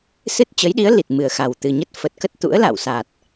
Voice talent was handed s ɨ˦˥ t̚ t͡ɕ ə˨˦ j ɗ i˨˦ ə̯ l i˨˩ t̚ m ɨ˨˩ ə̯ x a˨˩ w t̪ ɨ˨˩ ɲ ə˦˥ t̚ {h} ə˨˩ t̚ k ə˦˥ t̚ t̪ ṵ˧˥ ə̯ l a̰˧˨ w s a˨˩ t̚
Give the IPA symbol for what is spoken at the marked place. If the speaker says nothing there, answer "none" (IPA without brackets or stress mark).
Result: f